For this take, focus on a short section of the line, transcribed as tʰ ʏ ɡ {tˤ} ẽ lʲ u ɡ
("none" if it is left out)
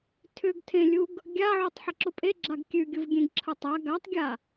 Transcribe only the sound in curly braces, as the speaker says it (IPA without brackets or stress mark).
tʰ